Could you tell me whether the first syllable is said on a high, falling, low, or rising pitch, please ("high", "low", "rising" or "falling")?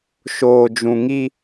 low